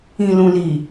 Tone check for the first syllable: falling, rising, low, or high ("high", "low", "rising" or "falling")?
low